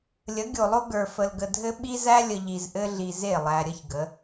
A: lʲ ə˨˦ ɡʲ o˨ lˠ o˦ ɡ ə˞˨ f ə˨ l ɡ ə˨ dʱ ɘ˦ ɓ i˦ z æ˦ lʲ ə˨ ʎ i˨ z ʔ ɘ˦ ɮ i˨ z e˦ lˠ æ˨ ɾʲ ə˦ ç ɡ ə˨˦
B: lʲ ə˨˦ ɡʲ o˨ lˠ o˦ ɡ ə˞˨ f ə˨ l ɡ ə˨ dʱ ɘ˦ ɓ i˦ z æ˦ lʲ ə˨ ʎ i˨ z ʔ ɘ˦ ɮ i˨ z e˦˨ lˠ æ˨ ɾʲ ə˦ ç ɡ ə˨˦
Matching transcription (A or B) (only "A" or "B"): B